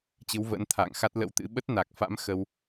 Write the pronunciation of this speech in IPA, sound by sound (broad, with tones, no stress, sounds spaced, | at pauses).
t͡ɕ ɨ˨˦ w v ə̰ː˧˥ n t̪ʰ a̰ː˧˨ ŋ x a˦˥ t̚ l ə̰˧˥ w t̪ ɨ̰˧˥ ɓ ə˦˥ t̚ n a˨˩ k̚ f a̰˧˥ m x ə˧ w